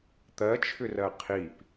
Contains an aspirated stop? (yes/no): yes